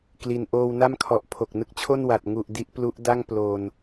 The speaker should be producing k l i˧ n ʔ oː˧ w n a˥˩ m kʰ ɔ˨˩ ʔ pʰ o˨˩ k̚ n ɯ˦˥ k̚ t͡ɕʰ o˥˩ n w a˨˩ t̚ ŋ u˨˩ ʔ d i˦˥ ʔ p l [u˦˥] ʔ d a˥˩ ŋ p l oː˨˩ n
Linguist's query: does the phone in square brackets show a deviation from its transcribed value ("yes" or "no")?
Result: no